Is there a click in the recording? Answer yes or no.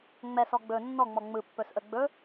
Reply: no